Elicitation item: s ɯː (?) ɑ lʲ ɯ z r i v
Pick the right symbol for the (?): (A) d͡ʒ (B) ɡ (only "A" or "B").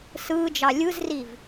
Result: A